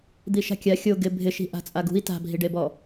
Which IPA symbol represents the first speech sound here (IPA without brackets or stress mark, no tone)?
d̪